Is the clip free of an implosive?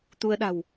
no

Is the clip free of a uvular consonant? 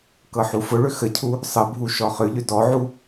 no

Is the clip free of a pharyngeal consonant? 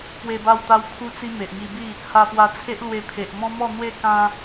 yes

